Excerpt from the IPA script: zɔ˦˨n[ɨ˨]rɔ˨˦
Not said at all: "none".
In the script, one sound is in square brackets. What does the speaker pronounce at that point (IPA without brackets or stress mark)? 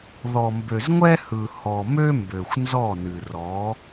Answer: ɨ˨